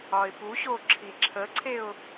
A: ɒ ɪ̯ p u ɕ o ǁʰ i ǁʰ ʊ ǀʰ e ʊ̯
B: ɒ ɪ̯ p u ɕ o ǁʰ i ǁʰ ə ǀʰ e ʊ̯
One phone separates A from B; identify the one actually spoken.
B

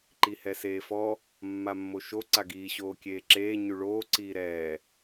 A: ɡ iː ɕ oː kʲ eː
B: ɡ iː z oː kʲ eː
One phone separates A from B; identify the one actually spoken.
A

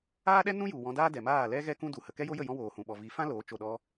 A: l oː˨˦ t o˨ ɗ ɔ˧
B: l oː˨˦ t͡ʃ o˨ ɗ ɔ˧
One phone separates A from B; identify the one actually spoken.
B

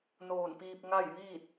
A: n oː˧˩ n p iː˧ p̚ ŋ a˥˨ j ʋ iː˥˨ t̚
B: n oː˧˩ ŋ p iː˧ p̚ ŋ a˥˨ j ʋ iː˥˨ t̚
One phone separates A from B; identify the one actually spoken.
A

